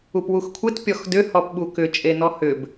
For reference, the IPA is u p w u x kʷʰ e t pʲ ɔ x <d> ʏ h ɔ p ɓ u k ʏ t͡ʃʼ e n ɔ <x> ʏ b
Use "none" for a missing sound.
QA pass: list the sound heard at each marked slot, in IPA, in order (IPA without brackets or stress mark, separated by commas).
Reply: d, h